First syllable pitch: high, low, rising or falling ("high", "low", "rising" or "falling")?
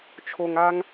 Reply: low